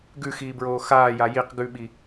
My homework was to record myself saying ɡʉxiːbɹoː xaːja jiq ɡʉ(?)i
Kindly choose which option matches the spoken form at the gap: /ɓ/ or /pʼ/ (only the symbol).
ɓ